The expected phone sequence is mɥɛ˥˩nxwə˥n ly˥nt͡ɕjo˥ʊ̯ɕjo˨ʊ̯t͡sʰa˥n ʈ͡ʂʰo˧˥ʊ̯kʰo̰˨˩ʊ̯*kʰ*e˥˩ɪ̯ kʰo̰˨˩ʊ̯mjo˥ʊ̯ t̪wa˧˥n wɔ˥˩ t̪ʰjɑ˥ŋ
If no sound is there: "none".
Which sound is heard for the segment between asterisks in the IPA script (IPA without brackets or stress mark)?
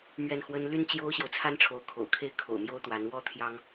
kʰ